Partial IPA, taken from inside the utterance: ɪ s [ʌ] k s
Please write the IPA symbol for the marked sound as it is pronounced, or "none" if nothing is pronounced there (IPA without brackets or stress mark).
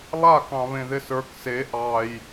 ə˞